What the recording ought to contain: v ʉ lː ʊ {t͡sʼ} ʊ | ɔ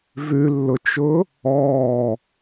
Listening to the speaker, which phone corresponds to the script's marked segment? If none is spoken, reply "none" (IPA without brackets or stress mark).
t͡ʃ